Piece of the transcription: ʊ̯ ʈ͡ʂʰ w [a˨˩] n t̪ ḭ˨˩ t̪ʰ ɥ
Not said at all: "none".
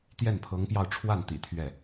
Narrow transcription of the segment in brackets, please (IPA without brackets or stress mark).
a˥˩